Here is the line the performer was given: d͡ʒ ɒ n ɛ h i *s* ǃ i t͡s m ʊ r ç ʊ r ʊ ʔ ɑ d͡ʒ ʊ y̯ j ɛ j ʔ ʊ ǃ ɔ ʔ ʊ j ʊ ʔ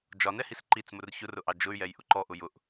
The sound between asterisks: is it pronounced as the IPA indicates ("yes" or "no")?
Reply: yes